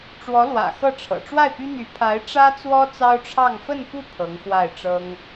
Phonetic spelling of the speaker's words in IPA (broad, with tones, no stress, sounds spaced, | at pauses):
ʈ͡ʂ w ɔ˧˥ l w ä̰˨˩ x ɤ˥˩ ʈ͡ʂʰ ɤ̰˨˩ ʈ͡ʂ w a˥˩ ɪ̯ p y˥ n̪ y˧˥ pʰ a˧˥ ɪ̯ ʈ͡ʂ ä˥ t͡s w ɔ˥ t͡s ɑ˥ ʊ̯ ʈ͡ʂʰ ɑ˥˧ ŋ f ə˥˧ n p u˥˩ pʰ ɤ˧˥ ŋ x w a˥˩ ɪ̯ ʈ͡ʂ ɤ˥ ŋ